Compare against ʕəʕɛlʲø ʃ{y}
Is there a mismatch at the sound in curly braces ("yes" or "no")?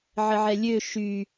no